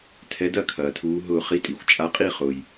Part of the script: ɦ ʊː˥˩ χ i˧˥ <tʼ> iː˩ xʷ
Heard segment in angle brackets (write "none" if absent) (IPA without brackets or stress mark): tʼ